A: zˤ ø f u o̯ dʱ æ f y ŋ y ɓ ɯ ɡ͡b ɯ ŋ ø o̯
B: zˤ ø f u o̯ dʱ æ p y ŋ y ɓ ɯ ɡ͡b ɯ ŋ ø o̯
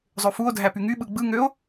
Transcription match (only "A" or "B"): B